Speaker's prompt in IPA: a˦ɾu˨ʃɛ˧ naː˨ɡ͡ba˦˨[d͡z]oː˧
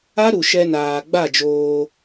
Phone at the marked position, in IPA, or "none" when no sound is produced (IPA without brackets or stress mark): d͡ʒ